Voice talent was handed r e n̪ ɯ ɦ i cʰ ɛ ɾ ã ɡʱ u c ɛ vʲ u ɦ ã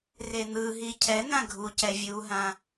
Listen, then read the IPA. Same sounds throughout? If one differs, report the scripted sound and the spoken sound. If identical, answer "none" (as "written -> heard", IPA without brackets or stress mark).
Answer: ɾ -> n̪